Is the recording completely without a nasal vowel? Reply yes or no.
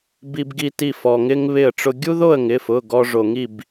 yes